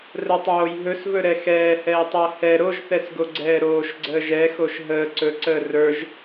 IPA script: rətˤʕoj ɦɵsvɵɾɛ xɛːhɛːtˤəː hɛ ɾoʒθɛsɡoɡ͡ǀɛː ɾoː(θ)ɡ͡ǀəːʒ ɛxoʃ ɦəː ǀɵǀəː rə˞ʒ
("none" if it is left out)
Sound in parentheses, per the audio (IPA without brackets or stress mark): ʃ